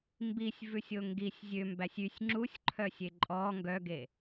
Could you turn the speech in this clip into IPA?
mbisʲvʉsʲo ŋɡisʲ zʲømbæsʲ ysʲ ŋ͡ǁusʲǃʰœsʲe ǃʼɔ ŋɡœɡe

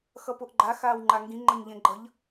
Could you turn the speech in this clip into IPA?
xʌpoʔɡ͡ǃa xaːwŋ͡ǃaŋɡĩ ŋ͡ǃʌɲʎẽɡ͡ǃʌʎ

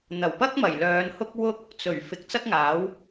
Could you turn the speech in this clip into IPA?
n̪ɐ˨˩wpɐ˥k̚mɐ˨˩j lœː˨˧nhʊ˥k̚ wʊ˥k̚ | t͡sɵ˨˩ɥ fɪ˨˥k̚t͡sɐ˥k̚ŋaː˨˥w

